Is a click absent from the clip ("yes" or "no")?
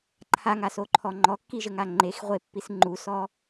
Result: no